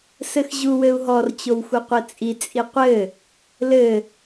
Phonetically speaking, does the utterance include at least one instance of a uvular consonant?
yes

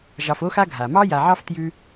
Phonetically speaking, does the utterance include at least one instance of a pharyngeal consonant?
yes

